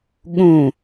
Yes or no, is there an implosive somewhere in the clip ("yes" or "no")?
yes